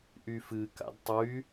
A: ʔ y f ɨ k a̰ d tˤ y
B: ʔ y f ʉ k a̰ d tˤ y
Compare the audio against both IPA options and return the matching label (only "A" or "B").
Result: A